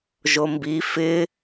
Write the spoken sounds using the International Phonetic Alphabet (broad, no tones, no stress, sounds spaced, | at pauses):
ʒ o m b i f ɪ